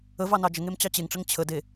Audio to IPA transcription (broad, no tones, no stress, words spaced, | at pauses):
əvɑ nɑd͡ʒəŋem t͡ɕɑt͡ɕeŋʈ͡ʂəŋ t͡ɕʰəde